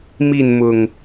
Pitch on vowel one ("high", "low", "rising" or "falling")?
falling